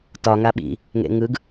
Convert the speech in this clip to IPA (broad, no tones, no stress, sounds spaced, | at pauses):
t ɒ ŋ a ɓ ḭ | ŋ ḛ ŋ ɯ ɡ